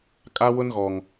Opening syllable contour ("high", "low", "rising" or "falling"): high